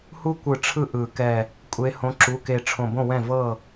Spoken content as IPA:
h u˦ kʷ ɯ˨˩˦ ʈ͡ʂʰ ɯ˦ ʔ ɯ˨˩˦ k ɛ˧˩ | kʷʼ e˨˦ h õ˨˦ ǁ u˩˧˩ k e˧˩ ʈ͡ʂʰ õ˧˩ b õ˥˩ w ɛ̃˥˩ v ɤ˥˩

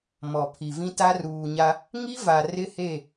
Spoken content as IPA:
m ɔ˨ pʰ i˨ v ĩ˦ t a˦ r uː˨ ɲ a˦ | ŋ i˦ v a˨ r ɪ˦ h e˦˨

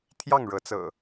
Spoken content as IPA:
t̪ʰ j ɑ˥˨ ŋ ɻ ɤ˨˦ t͡s ɤ̰˨˩

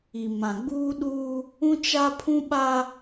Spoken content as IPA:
i˨ m ã˨ ɡ͡b uː˦ ɗ uː˦ | ũ˦ t͡ʃ a˦ pʰ ũ˦ ɓ a˦

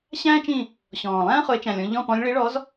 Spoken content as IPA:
ɕ æ̃ː˥ t͡ʃ ĩ˦˨ | ɕ ɔ̃ː˨˩ lˠ æ̃ː˥ χ ʊ˨˦ e̯ t͡ʃ æ̃˨˩ lʲ ɔ̃˦˨ ʎ ɔ̃˦˨ p ɔ̃˨˦ lʲ ɭ i˨˦ ɭ ɔ˨˦ z

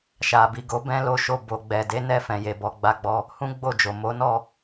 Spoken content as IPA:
ʃ a˨ b i˨ ɡ o˨˦ b ɛ̃˦ l o˦ ʃ o˦˨ b o˨ ɡ͡b ɛ˨ d e˨˦ n ɛ˦˨ f ɛ̃˧ j e˧ b ɔ˧ ɡ͡b a˦ ɡ͡b ɔ˦ | h ũ˦ ɡ͡b o˦˨ d͡ʒ o˨ m o˨˦ n ɔ˦˨

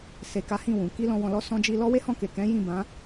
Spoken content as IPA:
s e˨ k a˨˦ h ĩ˦˨ w ũ˨ k i˧ l ɔ̃˨ w ɔ̃˨ l ɔ˧ s ɔ̃˧ d͡ʒ i˧ l ɔ˦ w e˦ h ɔ̃˦˨ k e˨ k ɛ̃˨˦ j ĩ˦˨ b ã˨˦

